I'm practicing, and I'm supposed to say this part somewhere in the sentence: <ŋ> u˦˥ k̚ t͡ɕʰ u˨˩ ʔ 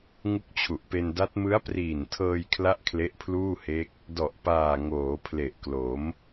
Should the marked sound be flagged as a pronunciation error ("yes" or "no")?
no